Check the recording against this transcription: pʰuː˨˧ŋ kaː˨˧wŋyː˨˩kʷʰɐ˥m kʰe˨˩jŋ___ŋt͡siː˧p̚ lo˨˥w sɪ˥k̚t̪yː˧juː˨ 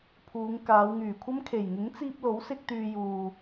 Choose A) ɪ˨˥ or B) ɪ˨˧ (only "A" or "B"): A